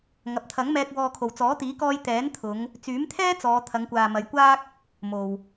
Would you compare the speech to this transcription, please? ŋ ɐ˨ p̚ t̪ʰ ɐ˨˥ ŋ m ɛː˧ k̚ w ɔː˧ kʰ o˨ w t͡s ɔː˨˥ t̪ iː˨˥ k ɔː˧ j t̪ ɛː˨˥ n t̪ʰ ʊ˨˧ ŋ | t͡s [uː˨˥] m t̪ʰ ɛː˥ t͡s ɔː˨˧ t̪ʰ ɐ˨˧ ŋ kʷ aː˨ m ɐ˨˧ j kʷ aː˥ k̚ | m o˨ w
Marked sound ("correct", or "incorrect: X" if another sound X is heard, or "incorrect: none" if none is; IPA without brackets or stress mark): incorrect: yː˨˥